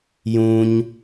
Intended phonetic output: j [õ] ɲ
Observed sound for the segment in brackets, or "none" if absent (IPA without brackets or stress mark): ũ